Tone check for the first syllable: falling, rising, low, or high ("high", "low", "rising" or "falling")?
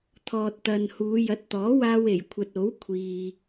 low